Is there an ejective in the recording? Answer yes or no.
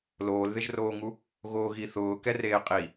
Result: yes